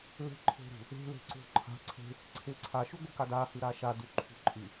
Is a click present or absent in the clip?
present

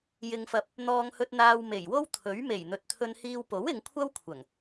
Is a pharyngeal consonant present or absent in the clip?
absent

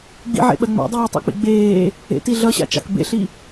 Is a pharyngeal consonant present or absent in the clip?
present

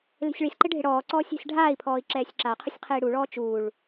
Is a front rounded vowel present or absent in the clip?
absent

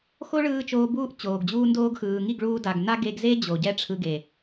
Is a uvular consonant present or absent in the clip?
absent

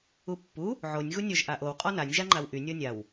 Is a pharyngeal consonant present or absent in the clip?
present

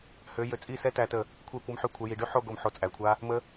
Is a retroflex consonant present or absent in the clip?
present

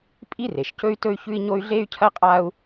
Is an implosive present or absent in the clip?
absent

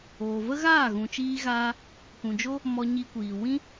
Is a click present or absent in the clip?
absent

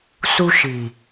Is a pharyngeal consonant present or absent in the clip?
absent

